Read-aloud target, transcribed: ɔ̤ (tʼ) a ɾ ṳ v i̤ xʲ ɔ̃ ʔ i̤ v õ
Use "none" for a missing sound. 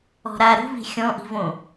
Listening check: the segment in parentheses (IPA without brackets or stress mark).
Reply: ɾ